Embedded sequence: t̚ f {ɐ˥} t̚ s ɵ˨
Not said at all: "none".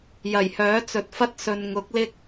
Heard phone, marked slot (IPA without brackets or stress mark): ɐ˥